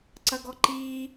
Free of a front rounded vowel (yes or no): yes